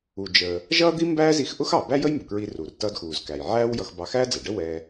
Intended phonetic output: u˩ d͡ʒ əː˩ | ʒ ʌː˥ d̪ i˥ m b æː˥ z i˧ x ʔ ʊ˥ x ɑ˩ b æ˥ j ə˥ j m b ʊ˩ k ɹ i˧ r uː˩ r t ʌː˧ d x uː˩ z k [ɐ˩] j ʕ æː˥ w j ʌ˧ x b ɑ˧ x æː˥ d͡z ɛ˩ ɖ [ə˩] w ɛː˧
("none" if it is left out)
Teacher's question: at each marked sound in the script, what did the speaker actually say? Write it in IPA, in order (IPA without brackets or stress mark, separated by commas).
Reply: æ˩, ə˥